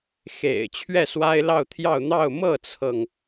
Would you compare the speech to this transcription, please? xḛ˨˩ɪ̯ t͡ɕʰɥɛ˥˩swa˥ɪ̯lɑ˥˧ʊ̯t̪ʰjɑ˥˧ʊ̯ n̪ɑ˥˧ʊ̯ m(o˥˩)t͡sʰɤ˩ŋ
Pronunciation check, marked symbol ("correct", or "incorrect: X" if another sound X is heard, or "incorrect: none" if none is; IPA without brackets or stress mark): incorrect: ɤ˥˩